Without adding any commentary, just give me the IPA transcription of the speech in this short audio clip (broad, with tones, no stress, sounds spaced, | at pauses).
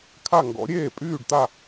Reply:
kʰ a˥˨ ŋ ɡ ɔ̰˨˥ ɾʲ eː˥˨ pʼ yː˥˨ ɖ t̪ a˥˨